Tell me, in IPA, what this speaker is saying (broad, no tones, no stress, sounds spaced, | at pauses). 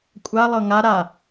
kʷʼ a lˠ ɤ ŋ a ɾ a